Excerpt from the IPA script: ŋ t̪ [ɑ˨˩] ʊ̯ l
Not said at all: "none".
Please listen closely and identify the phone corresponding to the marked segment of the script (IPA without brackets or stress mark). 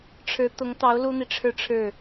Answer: ɑ˧˥